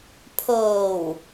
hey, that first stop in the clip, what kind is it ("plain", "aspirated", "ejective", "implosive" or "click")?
aspirated